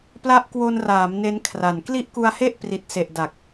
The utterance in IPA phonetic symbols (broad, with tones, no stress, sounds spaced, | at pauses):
p l a˦˥ ʔ k w o˧ n r aː˩˦ m n e˦˥ n kʰ r a˨˩ n k l i˥˩ ʔ k u˧ a̯ h e˥˩ ʔ p r i˨˩ t̚ s e˨˩ ʔ d a˨˩ k̚